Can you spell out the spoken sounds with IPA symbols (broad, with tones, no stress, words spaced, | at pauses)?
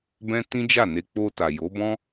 bɛ̃˦ tĩ˦d͡ʒa˦˨ne˧ k͡po˧ ta˨jo˨˦bɔ̃˦